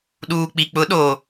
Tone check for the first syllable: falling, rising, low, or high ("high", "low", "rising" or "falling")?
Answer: low